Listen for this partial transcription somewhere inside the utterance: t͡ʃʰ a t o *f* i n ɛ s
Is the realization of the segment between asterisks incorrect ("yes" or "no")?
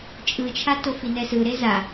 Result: no